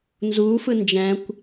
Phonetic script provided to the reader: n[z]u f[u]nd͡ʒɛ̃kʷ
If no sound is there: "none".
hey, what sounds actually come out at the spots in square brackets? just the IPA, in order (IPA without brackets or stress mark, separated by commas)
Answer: z, ɯ